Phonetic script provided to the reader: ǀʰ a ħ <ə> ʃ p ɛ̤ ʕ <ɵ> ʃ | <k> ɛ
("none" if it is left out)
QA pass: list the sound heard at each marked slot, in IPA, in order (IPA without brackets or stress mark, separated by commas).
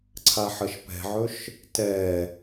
ə, ɵ, t